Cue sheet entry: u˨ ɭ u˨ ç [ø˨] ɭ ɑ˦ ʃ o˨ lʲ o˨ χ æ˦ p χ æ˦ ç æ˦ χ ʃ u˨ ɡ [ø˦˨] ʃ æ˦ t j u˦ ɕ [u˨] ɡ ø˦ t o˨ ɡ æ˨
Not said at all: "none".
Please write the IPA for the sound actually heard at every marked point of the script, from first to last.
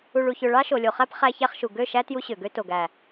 ø˨, ø˦˨, ø˨

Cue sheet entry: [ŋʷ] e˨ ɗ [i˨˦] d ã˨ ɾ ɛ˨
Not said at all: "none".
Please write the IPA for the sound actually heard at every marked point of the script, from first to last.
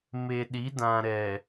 m, i˨˦

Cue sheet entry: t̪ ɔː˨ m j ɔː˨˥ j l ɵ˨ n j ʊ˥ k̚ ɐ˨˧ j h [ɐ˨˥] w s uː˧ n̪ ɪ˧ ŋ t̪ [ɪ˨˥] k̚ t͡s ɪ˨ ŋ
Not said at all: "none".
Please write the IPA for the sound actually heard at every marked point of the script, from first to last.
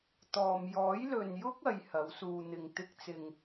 ɐ˨˥, ɪ˥

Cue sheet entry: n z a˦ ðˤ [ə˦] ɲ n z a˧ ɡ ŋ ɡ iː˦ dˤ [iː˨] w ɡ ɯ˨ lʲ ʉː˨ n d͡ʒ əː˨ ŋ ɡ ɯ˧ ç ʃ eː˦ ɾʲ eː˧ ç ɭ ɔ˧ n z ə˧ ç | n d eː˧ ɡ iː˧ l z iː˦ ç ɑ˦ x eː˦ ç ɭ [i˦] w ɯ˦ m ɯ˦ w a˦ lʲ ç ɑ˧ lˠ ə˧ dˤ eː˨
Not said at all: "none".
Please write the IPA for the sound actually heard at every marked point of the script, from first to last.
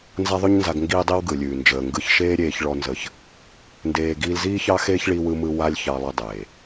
ʉ˦, iː˦, i˦

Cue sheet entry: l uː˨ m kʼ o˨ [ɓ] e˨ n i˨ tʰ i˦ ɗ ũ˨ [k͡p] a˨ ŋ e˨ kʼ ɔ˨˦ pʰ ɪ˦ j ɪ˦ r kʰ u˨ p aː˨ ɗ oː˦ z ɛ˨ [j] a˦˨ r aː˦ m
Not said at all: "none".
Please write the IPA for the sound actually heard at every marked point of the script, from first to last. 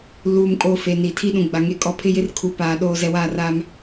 f, ɡ͡b, w

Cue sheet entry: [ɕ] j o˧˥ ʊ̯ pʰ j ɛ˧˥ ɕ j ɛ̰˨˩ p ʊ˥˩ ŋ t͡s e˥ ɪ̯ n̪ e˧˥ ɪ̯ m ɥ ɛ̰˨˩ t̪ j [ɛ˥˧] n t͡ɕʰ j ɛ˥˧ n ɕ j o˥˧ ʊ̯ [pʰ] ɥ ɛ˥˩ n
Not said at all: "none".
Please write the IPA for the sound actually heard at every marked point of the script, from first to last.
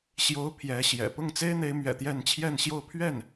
ɕ, ɛ˥˧, pʰ

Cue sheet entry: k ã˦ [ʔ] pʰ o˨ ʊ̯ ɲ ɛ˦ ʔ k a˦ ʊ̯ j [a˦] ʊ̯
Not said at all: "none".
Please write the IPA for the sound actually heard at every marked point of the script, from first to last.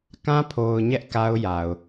none, a˨

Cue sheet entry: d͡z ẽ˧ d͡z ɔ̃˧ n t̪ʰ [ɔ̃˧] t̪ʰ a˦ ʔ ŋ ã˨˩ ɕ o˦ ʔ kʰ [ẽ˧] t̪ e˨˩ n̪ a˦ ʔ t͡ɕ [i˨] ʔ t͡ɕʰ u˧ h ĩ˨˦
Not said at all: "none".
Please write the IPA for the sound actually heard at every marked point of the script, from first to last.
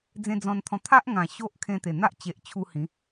ɔ̃˧, ẽ˧, e˨

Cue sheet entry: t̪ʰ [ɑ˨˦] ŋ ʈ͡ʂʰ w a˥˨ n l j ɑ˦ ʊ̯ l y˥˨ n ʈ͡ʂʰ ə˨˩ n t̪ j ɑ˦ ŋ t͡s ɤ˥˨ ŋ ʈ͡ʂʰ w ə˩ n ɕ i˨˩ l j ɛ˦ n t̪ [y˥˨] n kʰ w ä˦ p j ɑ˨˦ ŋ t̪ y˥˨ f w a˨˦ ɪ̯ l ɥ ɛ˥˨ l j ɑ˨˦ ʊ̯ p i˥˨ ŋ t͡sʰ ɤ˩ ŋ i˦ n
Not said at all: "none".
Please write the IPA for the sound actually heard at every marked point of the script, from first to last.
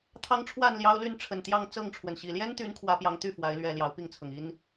ɑ˦, y˨˦

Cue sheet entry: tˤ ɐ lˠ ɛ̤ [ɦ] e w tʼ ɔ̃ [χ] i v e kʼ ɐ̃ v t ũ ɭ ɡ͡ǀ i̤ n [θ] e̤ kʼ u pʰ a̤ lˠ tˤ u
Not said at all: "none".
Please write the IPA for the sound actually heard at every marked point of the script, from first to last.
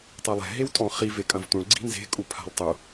ɦ, χ, z

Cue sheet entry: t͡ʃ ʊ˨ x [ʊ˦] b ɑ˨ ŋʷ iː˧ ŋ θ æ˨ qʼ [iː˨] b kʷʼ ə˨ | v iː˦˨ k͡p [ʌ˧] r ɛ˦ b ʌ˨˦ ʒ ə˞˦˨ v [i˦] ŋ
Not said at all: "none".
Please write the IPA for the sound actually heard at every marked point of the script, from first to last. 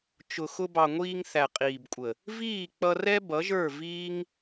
ʊ˧, iː˨, ʌ˧, iː˦

